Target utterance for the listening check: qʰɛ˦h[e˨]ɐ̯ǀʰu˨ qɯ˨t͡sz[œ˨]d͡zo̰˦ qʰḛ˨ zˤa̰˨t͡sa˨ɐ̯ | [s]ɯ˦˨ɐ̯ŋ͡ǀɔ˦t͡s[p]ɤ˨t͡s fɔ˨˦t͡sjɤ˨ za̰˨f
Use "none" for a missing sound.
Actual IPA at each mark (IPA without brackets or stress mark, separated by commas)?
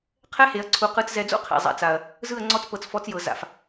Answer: e˨, ɛ˨, z, p